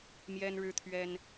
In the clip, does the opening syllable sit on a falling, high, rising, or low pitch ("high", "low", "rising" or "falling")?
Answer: high